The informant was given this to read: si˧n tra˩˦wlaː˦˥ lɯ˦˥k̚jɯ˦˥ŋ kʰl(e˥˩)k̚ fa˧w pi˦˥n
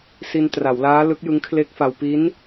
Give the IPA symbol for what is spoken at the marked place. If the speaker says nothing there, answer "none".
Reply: e˦˥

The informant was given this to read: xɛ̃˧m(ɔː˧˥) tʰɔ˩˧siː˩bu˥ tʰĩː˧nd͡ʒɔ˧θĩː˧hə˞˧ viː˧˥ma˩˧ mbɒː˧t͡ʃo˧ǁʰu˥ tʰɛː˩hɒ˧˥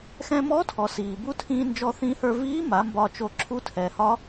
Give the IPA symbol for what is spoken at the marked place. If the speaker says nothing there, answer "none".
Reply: ɔ˧˥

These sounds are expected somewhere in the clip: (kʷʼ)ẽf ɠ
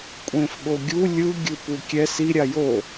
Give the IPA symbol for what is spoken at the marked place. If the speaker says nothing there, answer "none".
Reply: kʷʼ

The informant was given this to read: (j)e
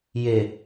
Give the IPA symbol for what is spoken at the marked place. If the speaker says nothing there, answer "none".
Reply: j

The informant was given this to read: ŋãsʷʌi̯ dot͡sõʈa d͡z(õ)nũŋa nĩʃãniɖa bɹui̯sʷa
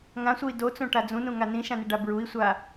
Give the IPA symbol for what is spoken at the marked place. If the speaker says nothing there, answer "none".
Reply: ũ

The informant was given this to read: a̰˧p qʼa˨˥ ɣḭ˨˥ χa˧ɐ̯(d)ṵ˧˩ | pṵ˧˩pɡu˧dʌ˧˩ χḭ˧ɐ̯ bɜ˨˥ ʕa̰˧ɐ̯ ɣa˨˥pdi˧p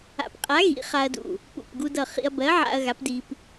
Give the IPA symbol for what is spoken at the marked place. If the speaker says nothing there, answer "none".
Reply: d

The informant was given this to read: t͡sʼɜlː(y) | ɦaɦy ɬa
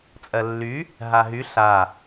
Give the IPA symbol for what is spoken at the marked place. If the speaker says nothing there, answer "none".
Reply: y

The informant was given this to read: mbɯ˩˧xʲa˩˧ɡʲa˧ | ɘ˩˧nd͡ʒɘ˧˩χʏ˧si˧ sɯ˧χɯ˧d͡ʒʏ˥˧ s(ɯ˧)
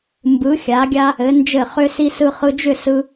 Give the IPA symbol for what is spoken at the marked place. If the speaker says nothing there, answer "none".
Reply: ɯ˧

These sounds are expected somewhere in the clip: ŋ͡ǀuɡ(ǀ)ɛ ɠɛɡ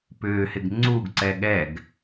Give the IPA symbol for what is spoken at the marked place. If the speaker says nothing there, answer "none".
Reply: ǀ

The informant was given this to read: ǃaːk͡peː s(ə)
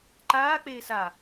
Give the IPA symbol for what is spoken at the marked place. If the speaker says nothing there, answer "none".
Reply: a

